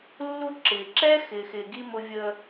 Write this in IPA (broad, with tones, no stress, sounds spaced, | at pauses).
lː u˦ ǁ ɪː˨ ǁ ɛ˦ x ɪ˨ x ɪː˨ ɡ i˦ m ʊ˦ vʲ əː˦